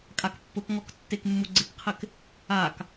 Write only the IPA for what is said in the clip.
kʼ a k pː ʊ k ŋ ɔ k tː e k mː u ɡ͡ǀ ɪ k qʰ ɪ k | a k

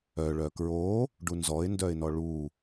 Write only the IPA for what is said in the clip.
œ ɭ œ k ɹ o | ɖ u n z ɔ ɪ̯ n d œ ɪ̯ n ɔ ɭ u

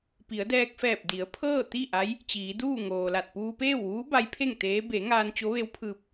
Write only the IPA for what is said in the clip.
p i˩˧ ə̯ d ɛː˧ k̚ f ɛː˧˩ p̚ d i˩˧ ə̯ pʰ ɤː˥˨ t̪ i˥˨ ʔ a˧˥ j | t͡ɕ iː˩˧ d uː˥˨ ŋ oː˩ l a˧˩ t̚ p uː˧ p eː˥˨ w ʋ uː˧˥ b a˧˥ j pʰ e˥˨ ŋ t̪ eː˧˥ b e˩˧ ŋ aː˧ n t͡ɕ o˧˥ ʋ e˧˥ w pʰ ɯː˧ p̚

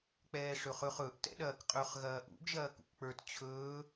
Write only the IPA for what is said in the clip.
k͡p ɛː ʂ ɵ χ ɵ χ ɵ ʔ t ɛ̰ ɗ ɐː k qʼ ɵ χ ɣ ɐː ʔ ṵ ɡ ʒ ɐː k ṵ k k͡p ə˞ t t͡ɕʰ ɵː

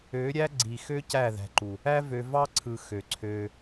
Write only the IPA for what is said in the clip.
ø˨˦ ɾʲ æ˦ ɡ͡ǀ i˨ x ø˦ c æ˦˨ ð æ̤˨ ǃ u˨ | æ˦ v ø˧ v ɑ˦ ǀʰ ɯ˨ x ø˨ ǀʰ ø˧

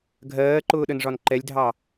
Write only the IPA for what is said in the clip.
ɡʱ ɜː ǃ ʊː ɗ ə n ʐ ɒ n ǃ ɛ lʲ dʱ ɑ

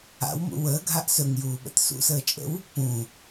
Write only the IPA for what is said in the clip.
a̰ w m ṵ w əː ɡʱ a ʔ s ɵ ŋ j uː ɓ ə̰ t s ṵ s əː t͡ʃʼ ə̰ w | p ũ

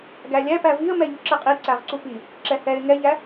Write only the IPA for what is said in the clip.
ɡ æ lʲ æ p æ v i ə̯ m ɛ ʎ u ǁ ɛ qʼ i ǀ æ ʁ ǀ u p i | ǁ ɛ h ɛ ɪ̯ ŋ ɛ ʎ æ

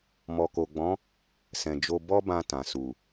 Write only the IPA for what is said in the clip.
m ɔ˨ k o˨ ɡ͡b ɔ̃˨˦ | s ɛ̃˨ d͡ʒ o˧ b ɔ˦ b ã˧ t ã˨ s u˨

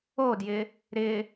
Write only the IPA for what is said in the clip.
o d j ɪ | ɾ ɪ

